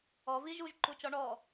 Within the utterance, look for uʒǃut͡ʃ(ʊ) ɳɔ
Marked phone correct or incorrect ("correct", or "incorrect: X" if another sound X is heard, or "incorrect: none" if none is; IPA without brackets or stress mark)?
incorrect: ɔ